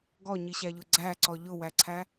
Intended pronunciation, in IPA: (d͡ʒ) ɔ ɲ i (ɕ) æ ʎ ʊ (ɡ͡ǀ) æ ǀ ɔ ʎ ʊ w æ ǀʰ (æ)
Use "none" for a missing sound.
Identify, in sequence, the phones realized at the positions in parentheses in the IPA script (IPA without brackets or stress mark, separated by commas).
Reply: ɡ, ɕ, ɡ͡ǀ, æ